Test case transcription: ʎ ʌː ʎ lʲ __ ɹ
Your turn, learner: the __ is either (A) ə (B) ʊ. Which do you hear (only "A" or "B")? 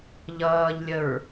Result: A